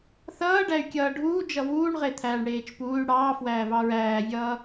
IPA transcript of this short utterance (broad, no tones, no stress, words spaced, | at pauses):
θʌːɖæy̯kʲʌː ɖʱuː d͡ʒʌvuːɳʁet̪ʰæːɳ ɽeːt͡ʃpuːy̯ ɽɑːfwæːvɑ ɹæːvʲʌː